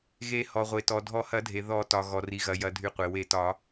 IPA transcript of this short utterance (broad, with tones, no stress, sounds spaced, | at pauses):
ɣ e˨˩˦ h ɔ˩ ʁʷ e˩ t ɔ˩ dʱ ɔ˨˩˦ h ɐ˨˩˦ dʱ e˩ ð ɔ˨˩˦ t ɒ˩ ɣ ɔ˩ r i˩ ɣ ɐ˩ j ɐ˩ dʱ y˩ qʷ e˩ w e˨˩˦ t ɒ˨˩˦